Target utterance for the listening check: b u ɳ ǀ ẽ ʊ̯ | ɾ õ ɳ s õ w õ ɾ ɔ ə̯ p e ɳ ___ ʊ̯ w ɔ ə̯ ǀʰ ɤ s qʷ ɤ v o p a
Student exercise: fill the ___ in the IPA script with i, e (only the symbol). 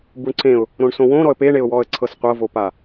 e